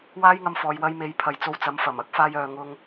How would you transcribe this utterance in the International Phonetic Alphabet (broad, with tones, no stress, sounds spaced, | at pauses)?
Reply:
w aː˧ j ŋ ɐ˨ m f ɔː˨ j w ɐ˧ j m e˨˧ j pʰ ɐ˨ j t͡s o˧ w t͡s ɐ˨˧ m f ɐ˨˩ m ɐ˥ k̚ f aː˧ j œː˨ ŋ ʊ˧ ŋ